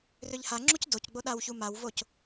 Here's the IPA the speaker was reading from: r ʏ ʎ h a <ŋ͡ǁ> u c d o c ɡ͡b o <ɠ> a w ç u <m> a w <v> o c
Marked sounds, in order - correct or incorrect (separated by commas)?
correct, incorrect, correct, correct